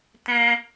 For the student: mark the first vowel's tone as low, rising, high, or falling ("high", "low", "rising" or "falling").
high